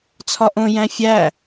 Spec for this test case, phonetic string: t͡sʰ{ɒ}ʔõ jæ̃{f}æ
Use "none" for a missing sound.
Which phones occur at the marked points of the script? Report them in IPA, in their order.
ɒ, fʲ

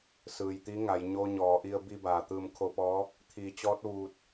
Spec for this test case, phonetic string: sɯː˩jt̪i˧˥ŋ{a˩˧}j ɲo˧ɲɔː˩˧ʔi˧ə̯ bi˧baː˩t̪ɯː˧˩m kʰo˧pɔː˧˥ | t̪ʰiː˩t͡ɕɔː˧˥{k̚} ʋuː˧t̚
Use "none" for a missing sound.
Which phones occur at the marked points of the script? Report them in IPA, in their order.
a˩˧, t̚

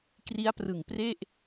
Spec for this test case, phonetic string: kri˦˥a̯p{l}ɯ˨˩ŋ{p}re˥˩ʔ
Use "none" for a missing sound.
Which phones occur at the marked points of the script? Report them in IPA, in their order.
r, p

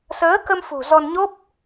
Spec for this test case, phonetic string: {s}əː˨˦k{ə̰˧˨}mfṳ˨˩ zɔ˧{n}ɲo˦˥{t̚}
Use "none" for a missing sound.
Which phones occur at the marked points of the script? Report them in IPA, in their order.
s, ə˧, n, p̚

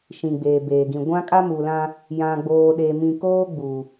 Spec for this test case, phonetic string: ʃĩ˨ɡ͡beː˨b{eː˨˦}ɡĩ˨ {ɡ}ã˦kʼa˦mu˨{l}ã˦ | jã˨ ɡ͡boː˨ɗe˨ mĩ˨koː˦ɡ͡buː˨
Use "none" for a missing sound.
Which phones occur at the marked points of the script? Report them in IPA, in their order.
eː˨, ɡʷ, l

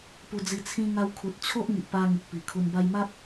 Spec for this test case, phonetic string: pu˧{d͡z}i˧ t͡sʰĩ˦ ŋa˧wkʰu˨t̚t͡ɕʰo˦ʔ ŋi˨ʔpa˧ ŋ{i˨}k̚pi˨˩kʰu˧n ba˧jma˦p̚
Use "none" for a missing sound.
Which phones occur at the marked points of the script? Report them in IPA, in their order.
d͡z, i˨

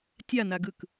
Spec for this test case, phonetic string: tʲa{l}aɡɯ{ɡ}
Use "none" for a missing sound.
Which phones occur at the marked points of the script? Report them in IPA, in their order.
n, k

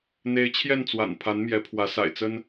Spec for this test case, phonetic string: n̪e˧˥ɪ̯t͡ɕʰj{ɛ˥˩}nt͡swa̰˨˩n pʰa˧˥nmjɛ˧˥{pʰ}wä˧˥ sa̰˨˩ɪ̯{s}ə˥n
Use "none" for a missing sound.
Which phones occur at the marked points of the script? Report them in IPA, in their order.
ɛ˥˩, pʰ, t͡s

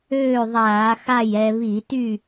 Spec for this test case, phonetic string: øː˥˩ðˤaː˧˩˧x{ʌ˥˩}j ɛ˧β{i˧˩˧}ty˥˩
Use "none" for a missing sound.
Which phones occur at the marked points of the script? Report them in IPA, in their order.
a˥˩, i˧˩˧

